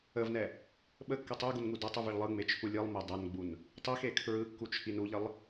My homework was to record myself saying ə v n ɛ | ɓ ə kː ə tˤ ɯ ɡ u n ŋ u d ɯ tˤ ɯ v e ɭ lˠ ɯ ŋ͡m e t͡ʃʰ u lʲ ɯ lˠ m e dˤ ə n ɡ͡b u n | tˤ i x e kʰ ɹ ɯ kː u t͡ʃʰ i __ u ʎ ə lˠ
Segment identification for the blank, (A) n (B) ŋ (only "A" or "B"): A